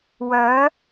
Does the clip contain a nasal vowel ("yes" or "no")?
no